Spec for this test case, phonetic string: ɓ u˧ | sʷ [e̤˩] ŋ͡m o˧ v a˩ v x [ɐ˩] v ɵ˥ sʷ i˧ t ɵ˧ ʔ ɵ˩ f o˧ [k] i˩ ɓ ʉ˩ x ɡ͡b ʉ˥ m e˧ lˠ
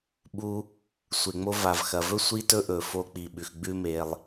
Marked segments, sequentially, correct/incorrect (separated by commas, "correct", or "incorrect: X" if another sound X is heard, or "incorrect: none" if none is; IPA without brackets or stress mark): incorrect: e˩, correct, incorrect: k͡p